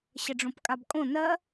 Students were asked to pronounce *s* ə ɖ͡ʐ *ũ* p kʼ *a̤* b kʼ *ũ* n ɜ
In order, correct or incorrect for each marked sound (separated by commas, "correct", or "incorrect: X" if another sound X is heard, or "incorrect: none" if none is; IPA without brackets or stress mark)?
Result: incorrect: ɕ, incorrect: õ, incorrect: a, incorrect: õ